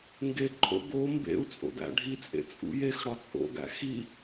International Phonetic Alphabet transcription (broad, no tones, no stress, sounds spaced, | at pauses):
ŋ ɡ e ǃʰ o̰ ɡ o m b ḛ u̯ t͡sʼ o̰ d æ̰ ɖʱ i t͡sʼ ḛ t͡sʼ ṵ j e x ɽ ɒ t͡sʼ o̰ ɡ æ̰ x i